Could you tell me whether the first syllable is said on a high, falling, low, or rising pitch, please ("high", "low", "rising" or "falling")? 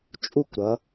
falling